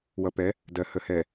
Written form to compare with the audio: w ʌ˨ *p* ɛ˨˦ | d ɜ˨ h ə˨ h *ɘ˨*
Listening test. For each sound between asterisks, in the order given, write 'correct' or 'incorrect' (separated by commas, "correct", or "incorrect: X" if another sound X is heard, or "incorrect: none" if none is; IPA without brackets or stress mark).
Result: correct, incorrect: ɛ˨